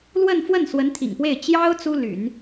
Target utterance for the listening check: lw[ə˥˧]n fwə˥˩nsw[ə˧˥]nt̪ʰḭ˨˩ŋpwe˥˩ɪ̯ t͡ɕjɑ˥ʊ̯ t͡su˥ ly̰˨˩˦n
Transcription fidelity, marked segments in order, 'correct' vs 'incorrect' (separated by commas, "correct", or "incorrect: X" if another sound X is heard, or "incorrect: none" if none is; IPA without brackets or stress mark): correct, correct